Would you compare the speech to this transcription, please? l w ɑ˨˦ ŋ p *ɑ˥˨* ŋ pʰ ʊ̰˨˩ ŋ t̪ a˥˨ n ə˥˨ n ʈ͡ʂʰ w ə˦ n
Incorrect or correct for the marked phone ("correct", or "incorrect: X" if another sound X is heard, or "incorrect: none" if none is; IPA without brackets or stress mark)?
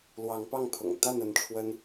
correct